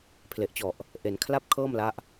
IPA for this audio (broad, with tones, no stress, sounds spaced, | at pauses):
pʰ l e˨˩ ʔ t͡ɕ ɔ˨˩ ʔ | ʔ e˩˦ n kʰ l a˥˩ p̚ kʰ ɤː˥˩ m l a˦˥ ʔ